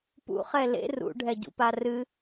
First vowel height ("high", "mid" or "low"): high